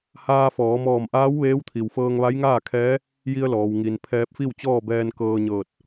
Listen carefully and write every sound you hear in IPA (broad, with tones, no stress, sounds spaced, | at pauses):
h aː˧ f ɔː˩˧ m ɔː˧˩ m ʔ aː˧˥ w ʋ eː˧˥ w t̪ʰ i˩ w f ɤː˧ ŋ ʋ a˧˥ j ŋ aː˥˨ kʰ ɛː˧˥ | j i˧ ə̯ l ɔː˩ w ŋ i˩ n pʰ ɛː˧ p̚ f i˥˨ w t͡ɕ ɔː˥˨ b ɛː˧ n k ɤː˧ ɲ ɤː˧˩ t̚